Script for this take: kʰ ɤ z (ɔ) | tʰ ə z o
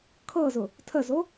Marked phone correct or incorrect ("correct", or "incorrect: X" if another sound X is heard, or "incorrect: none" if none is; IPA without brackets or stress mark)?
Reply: incorrect: ʊ